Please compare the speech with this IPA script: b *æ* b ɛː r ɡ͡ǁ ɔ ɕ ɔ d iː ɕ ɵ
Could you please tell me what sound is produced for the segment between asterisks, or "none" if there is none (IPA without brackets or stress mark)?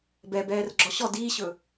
ɛ